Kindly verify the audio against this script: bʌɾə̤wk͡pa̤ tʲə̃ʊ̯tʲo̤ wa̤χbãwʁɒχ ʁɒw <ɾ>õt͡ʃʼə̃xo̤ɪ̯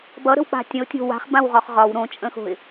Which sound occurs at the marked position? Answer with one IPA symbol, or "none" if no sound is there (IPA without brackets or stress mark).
ɾ